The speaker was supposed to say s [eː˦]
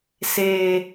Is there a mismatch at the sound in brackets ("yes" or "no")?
yes